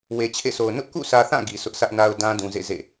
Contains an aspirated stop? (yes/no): yes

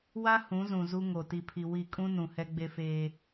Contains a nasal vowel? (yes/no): yes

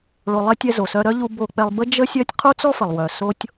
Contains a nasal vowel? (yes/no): no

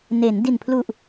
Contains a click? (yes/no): no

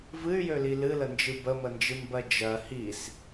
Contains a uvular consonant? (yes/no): no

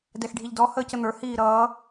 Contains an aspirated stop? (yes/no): no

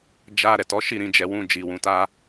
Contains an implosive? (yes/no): no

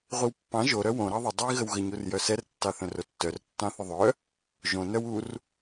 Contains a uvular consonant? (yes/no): yes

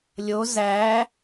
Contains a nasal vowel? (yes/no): no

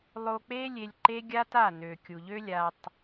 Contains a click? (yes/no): yes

